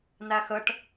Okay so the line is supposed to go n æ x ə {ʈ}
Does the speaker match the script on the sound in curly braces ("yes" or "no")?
yes